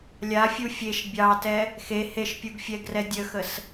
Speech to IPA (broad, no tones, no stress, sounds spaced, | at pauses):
lʲ a fʲ u fʲ e ʃ bʲ ɑ t ɛ | x e h e ʃ pʲ u ɡ fʲ ɛ ɡ r ɛ dʲ ə x ə s